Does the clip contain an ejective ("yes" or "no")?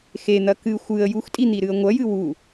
yes